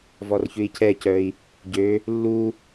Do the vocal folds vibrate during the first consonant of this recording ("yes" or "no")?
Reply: yes